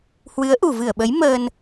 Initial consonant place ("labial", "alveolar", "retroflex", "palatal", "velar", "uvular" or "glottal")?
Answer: glottal